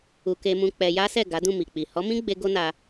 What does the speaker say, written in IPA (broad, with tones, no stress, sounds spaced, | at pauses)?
u˧ k e˧ m ũ˧ k͡p ɛ˧ j a˦ s ɛ˦˨ ɡ a˨˦ d ũ˦˨ m i˨ k͡p i˨ h ɔ˨˦ m ĩ˦ ɡ͡b e˧ ɡ o˦ n a˧